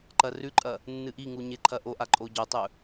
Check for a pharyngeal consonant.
absent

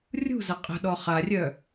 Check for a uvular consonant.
present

